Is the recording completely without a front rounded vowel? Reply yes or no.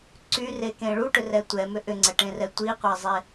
no